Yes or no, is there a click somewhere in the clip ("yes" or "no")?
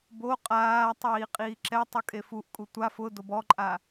yes